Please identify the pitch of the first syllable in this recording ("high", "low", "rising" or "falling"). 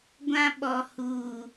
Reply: high